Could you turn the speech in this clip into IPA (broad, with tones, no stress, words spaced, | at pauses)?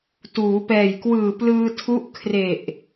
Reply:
tuː˩˦pɛː˨˩j kwɯː˨˩plɯː˧tʰu˦˥ʔ kʰre˨˩ʔ